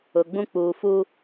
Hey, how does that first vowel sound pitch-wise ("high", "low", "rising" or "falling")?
low